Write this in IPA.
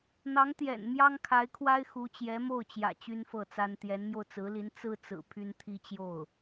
n̪ ɑ˧˥ ŋ t̪ j ɛ̰˨˩ n m j ɑ˥ ŋ kʰ a˧˥ ɪ̯ kʰ w a˥ ɪ̯ x u˧˥ t͡ɕ j ɛ˧˥ m o˥˩ ʊ̯ t͡ɕ j ä̰˨˩ t͡ɕ y˥ n f ɤ˥˩ t͡s a˥ n t̪ j ɛ˧˥ n m j o˧ ʊ̯ t͡s ɹ̩˧˥ l i˧˥ n t͡s ɹ̩˥ t͡s ɹ̩˨˩ pʰ y˥ n t̪ʰ i˥ t͡ɕ j o˥˩ ʊ̯

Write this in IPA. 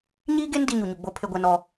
ɲ iː˦ ɡ e˦ n d i˦ ɲ u˨ ɲ u˨ ɡ͡b o˦ pʰ e˦ ɡʷ ɛ˦ n ɔ˦

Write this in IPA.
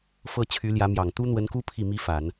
f ɤ˥˩ t͡ɕʰ y˧˥ l j ä˧˥ m j ɑ˨˩ ŋ t̪ u˥ n̪ w ə˧˥ n k u˥ pʰ i˥˩ m i˥ f a˨˩˦ n

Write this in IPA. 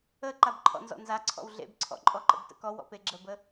ə ǃ a b ǃʰ ɔ̰ n z ɔ̰ n z a ǀʰ ɔ̰ w ɮ ḛ b ǀʰ ɔ̰ ǃʼ ɔ ǃ ə̰ b t ə̰ k ɔ w ɔ̰ p e ɡ͡ǁ ə b ə

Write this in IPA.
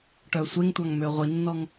ʈ œ sʷ e ŋ tʷ ɑ ŋ m ø ʁʷ i nː ɔ ŋ

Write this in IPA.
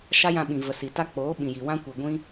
ʃ a˦ j ã˧ ɓ ĩ˨ v ə˨ s i˨ t a˦ k͡p oː˨˦ ɓ ĩ˨ j i˨ w ã˦ kʷ i˨ ɡʷ ĩ˦

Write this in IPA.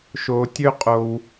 ʃ o˧ tʲ ø˦ qʼ o˧ w

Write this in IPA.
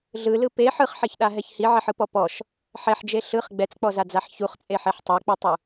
ɮ ɯ l ɯ p e ħ ɯ χ ħ e ç ɗ a ɦ ɛ ç h i ʕ ɛ ħ ɯ p ɔ p ɔ ʃ | ħ ɛ ħ d͡ʒ e ɬ ɯ χ ɡ͡b ɛ t͡s k͡p ɔ z a d͡z a ħ ç u χ t͡sʼ e ħ e ħ tˤ e k͡p i tˤ u

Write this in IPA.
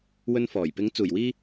w ɵ˧ n f ɔː˨˩ j p ɪ˨˥ ŋ t͡s uː˨˩ j w iː˥

